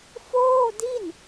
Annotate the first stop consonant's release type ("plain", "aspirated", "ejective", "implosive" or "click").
plain